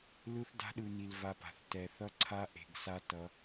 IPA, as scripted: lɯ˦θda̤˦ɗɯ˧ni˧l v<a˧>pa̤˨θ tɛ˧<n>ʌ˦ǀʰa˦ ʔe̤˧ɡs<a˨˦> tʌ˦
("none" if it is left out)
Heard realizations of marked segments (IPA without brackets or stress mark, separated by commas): a˧, θ, a˦